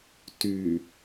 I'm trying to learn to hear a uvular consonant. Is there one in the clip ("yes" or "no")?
no